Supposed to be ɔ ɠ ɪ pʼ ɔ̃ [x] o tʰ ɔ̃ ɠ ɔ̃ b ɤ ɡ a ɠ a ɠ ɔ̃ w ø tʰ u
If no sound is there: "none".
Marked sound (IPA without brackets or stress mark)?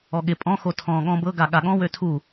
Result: x